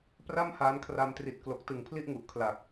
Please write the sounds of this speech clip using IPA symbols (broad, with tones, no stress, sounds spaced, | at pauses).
p r a˥˩ m h aː˦˥ n kʰ r a˧ m t r i˨˩ t̚ k l o˨˩ k̚ t ɯ˨˩ ŋ pʰ l i˥˩ ʔ ŋ u˨˩ ʔ kʰ l a˨˩ k̚